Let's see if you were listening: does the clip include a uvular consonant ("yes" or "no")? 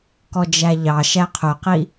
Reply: yes